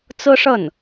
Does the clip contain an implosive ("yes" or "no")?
no